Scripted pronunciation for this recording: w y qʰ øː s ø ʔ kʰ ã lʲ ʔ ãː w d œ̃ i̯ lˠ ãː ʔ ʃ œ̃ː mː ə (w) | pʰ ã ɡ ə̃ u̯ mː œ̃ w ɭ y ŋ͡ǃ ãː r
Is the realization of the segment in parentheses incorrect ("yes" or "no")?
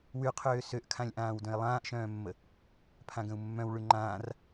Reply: yes